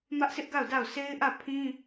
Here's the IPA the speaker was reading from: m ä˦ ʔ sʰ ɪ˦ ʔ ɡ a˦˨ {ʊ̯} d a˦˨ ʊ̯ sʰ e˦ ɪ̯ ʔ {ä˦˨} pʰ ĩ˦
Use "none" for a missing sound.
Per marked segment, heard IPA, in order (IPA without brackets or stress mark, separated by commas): ʊ̯, ä˦˨